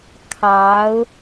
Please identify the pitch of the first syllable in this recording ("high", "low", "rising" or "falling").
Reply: rising